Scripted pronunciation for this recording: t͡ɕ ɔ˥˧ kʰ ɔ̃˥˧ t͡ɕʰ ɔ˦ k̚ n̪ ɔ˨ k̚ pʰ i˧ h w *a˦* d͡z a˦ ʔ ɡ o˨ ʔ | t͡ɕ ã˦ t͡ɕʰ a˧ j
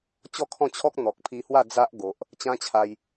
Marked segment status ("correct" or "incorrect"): incorrect